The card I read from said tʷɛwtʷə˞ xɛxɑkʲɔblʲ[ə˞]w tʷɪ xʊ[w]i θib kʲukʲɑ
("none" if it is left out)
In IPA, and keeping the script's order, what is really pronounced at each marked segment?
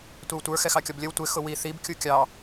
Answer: ə, w

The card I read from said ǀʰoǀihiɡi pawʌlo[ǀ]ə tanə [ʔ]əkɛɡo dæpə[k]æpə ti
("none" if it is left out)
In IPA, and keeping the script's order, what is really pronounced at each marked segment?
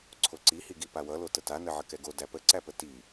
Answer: t, ʕ, ǀ

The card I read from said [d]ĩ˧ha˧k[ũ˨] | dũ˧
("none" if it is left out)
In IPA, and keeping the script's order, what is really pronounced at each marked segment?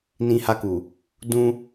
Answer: n, u˨

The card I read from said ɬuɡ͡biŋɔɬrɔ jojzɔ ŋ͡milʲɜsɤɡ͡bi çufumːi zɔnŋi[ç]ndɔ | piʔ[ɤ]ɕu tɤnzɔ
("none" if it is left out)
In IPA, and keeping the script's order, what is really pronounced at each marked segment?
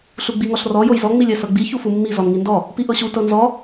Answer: none, ɤ

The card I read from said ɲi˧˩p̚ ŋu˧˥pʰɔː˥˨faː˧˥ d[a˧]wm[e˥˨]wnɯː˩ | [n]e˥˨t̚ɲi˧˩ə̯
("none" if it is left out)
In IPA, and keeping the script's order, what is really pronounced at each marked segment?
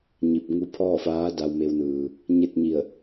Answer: a˧, e˧, ɲ

